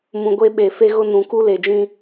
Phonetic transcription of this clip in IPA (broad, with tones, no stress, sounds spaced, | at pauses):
m ũ˨ ɡʷ e˦ ɓ e˨ f e˦ ɣ ʊ˦ n ũ˨ k u˦ l e˨ d͡ʒ ĩ˦